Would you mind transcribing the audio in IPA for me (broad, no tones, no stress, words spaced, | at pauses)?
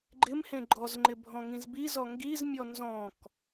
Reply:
ɡ͡ǃɪmhẽ ɡ͡ǃɔzŋ͡ǃɪ bʱɔ̃ŋĩzbizɔ ŋɡizmʲɔ nzɔ̃k